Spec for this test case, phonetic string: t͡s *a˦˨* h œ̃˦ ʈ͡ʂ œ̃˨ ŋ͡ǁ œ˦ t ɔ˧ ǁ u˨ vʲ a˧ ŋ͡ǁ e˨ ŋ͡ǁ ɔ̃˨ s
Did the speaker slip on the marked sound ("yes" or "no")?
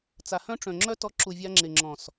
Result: yes